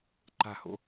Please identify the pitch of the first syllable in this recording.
falling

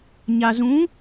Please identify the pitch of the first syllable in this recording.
low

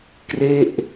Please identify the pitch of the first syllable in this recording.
falling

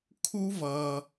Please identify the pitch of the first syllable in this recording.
high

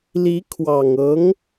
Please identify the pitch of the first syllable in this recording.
rising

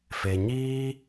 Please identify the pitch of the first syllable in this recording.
low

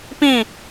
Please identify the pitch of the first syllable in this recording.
falling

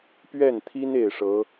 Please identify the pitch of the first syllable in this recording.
falling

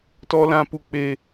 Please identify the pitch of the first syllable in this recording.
high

